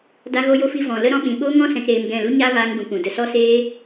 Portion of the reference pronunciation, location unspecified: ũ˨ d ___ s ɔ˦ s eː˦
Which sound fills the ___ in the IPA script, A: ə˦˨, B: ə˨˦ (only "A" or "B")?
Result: A